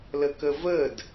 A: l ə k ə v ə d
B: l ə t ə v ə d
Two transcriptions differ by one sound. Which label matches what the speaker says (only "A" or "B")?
A